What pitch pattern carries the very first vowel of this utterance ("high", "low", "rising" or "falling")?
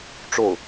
falling